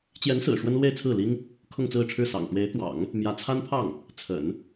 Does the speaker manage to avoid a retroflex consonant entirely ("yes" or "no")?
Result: no